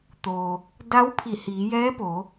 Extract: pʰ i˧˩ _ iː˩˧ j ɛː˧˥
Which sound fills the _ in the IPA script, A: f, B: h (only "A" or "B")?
B